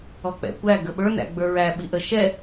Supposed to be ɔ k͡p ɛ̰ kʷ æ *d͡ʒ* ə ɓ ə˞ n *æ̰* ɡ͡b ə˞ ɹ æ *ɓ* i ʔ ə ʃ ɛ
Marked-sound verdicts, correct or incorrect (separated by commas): incorrect, correct, correct